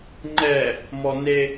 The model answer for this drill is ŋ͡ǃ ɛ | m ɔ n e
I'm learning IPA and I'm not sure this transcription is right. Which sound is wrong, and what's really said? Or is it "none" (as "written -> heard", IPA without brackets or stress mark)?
none